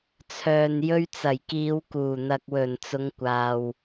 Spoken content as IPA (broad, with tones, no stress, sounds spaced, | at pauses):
t͡sʰ œː˨ n j ɵ˧ ɥ t͡s ɐ˨˩ j k iː˨˧ w k uː˨˩ n̪ ɐ˨ k̚ w ɵ˨˩ n t͡s ʊ˨˧ ŋ kʷ aː˨ w